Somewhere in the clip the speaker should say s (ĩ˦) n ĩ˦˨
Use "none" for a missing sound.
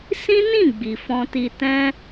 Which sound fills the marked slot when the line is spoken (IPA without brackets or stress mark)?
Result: ĩ˦